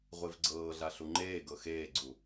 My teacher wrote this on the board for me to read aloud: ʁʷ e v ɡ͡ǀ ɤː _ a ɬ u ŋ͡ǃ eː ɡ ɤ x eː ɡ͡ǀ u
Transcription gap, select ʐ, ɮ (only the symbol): ɮ